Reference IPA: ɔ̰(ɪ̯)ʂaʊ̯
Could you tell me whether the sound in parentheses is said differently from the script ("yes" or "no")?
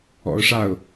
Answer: yes